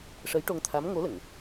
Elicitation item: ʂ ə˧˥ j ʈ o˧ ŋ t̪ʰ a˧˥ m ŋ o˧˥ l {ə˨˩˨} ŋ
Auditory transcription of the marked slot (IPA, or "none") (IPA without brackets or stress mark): ə˨˩˨